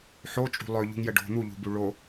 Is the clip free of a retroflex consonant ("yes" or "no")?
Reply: no